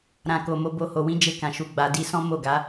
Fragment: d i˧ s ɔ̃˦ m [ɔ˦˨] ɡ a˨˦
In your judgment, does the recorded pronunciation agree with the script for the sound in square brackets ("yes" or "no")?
no